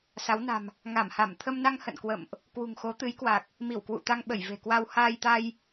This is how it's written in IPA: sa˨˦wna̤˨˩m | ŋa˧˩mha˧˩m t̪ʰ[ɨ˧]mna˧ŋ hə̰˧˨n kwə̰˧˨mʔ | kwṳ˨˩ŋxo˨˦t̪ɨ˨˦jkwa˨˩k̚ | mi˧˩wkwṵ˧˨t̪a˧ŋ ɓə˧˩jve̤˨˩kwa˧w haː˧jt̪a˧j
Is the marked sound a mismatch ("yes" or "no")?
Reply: yes